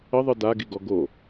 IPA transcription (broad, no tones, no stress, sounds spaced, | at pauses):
ə ðˤ ɯ d a ɡ i ɡ ɔ ɡ o